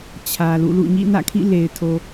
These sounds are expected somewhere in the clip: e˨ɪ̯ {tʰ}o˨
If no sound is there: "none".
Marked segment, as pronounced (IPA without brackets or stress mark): tʰ